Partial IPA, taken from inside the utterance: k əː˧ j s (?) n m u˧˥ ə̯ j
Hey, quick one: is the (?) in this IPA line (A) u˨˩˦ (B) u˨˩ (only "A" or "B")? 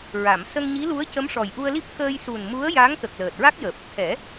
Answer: B